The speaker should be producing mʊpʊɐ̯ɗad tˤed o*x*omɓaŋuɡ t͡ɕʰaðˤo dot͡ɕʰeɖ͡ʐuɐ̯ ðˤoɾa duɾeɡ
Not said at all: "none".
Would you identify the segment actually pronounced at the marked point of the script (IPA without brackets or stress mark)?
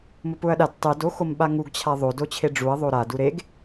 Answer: x